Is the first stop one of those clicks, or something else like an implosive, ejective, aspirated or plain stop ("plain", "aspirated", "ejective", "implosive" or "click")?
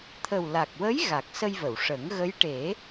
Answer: aspirated